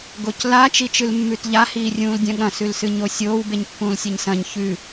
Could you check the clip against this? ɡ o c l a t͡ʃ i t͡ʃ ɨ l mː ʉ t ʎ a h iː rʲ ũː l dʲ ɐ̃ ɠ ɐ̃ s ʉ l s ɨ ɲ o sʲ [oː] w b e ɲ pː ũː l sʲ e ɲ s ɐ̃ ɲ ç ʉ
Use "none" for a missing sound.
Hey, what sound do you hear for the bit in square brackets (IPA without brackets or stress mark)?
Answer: oː